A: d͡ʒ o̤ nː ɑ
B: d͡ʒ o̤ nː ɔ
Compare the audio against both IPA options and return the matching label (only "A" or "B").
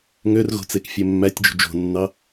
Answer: A